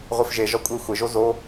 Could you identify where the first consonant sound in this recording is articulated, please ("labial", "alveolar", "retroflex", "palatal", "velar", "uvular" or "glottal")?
uvular